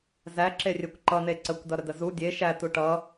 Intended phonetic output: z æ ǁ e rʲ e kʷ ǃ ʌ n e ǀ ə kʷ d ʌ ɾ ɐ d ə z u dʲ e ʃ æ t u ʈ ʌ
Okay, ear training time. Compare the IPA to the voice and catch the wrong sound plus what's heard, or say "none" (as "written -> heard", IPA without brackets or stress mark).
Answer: ɐ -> ə